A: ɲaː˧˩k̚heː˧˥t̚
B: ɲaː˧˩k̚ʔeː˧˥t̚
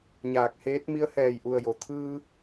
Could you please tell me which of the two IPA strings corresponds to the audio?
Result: A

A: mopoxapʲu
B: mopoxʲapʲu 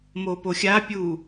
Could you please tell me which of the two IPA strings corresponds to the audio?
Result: B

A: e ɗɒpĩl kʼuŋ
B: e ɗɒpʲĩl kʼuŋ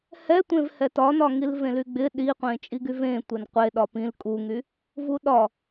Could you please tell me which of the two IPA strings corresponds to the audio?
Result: A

